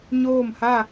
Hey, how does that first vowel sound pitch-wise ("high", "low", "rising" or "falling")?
falling